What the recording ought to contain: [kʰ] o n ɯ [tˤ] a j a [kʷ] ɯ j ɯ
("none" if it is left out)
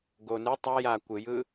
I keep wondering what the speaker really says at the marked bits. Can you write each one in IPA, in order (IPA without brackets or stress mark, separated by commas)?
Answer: ɡ, tˤ, kʷ